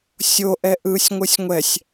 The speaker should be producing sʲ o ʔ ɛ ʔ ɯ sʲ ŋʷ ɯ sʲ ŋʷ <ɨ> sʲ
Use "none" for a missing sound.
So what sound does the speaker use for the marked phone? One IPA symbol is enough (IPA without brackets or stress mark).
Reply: ɛ